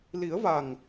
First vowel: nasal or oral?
oral